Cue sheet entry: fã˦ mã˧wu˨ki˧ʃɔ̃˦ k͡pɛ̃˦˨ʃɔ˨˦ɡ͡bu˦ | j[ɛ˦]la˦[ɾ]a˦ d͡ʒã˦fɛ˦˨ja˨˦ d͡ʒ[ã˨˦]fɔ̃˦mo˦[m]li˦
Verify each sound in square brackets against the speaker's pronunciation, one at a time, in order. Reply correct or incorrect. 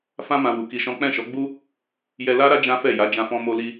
incorrect: ɛ˧, correct, incorrect: ã˦, incorrect: none

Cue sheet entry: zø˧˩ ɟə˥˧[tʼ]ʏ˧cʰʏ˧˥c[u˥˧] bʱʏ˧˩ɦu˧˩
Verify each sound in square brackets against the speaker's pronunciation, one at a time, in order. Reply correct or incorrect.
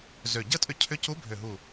correct, incorrect: u˧˥

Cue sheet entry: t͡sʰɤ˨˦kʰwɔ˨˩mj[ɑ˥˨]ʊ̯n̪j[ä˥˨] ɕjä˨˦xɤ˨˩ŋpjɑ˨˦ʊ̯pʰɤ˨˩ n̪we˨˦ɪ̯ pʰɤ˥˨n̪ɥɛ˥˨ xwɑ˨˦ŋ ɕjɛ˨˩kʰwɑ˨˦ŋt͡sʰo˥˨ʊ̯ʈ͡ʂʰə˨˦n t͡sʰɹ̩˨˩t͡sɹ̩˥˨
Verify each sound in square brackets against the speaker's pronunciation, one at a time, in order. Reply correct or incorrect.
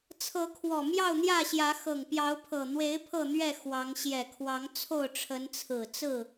correct, correct

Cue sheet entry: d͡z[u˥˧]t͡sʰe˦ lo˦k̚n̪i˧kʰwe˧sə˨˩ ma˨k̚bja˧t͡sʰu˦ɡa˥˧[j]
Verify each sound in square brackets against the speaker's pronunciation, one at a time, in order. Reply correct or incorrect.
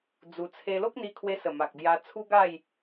incorrect: u˧, correct

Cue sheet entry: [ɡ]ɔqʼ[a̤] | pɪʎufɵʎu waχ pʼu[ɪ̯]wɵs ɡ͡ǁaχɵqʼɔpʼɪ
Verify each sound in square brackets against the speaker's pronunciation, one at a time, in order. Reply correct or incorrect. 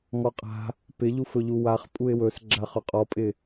incorrect: ŋ, correct, correct

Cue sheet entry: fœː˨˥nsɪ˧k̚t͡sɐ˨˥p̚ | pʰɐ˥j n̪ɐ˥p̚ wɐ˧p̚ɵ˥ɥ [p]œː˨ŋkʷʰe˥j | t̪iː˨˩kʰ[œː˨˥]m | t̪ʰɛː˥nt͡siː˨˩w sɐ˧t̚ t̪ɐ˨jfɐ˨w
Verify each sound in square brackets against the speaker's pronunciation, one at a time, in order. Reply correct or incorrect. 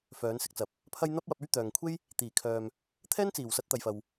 incorrect: t̪, incorrect: œː˨

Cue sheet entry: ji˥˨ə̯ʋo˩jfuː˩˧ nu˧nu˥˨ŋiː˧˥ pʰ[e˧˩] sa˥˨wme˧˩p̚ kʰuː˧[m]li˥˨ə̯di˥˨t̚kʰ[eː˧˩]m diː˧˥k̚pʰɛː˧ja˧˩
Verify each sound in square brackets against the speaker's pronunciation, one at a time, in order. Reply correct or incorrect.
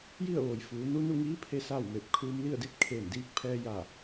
incorrect: e˧, correct, correct

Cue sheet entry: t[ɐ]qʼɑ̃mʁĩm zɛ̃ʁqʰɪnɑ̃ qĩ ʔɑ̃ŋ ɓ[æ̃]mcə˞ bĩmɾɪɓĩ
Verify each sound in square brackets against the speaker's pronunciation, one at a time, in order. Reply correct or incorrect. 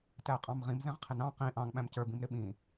incorrect: æ, correct

